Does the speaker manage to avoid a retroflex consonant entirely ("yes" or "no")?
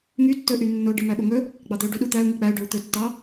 no